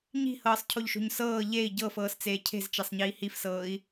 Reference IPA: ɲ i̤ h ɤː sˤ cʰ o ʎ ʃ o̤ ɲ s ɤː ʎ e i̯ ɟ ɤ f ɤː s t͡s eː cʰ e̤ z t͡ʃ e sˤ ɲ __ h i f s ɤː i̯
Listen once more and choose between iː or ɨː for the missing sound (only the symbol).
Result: iː